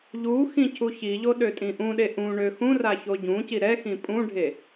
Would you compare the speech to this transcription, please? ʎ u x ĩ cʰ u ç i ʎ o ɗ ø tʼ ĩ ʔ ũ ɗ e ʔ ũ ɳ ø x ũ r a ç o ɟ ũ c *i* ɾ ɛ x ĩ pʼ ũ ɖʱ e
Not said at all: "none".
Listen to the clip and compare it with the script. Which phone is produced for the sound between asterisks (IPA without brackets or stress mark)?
i